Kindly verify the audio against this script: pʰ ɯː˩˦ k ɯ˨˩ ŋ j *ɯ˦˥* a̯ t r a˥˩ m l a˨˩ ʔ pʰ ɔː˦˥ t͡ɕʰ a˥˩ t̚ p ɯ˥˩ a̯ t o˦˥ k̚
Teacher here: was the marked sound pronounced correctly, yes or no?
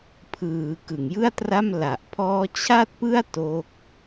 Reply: no